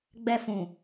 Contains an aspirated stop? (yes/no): no